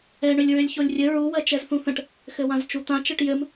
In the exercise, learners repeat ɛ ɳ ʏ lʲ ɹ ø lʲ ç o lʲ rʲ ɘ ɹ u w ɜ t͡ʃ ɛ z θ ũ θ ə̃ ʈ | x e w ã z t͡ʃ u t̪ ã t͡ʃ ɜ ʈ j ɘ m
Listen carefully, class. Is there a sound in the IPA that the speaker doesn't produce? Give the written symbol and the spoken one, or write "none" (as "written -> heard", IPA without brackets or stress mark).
e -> ɘ